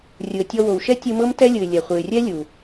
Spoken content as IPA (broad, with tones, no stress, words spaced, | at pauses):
rʲɯ˩ə̯tʲɔ˧ wo˩wʃɛ˥tʲɯ˧ mɤ˥mtɛ˥lʲɯ˩ɪ̯ lʲɛ˩χʷɯ˩ɪ̯rʲɛ˥ lʲu˩